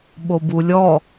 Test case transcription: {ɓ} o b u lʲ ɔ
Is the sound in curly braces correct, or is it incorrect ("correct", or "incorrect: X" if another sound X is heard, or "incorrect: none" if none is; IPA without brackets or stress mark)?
correct